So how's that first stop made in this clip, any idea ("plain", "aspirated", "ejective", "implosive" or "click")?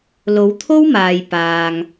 aspirated